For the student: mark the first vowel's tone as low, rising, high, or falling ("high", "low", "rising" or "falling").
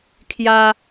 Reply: high